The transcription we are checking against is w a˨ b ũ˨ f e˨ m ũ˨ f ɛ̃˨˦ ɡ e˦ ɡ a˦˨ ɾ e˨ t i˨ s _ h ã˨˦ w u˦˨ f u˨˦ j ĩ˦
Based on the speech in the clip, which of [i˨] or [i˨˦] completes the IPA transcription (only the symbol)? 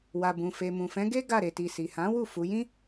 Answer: i˨